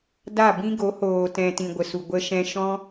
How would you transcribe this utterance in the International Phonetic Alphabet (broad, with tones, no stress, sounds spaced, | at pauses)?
d a˦˨ b ĩ˦ ɡ o˨˦ h oː˨ t ɛ̃˨ t ĩ˨ ɡʷ ə˨ s u˨ ɡʷ ə˧ ʃ ɛ̃˧ ʃ ɔ̃˦